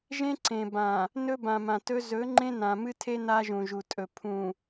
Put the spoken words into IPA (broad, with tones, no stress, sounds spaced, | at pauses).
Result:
ʒ ẽ˦ ǀ ẽ˨ b ã˨ | n ɵ˦ b ã˨ m ã˨ t ɵ˦ z ɵ˨˦ ŋ͡ǃ ẽ˦ n ã˨ m ɨ˦ tʰ e˦ n a˦ ʒ ũ˨ ʒ u˨ tʼ ɵ˨ pʰ ũ˨